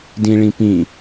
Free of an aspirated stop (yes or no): yes